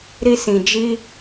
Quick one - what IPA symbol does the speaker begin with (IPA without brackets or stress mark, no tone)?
ɾ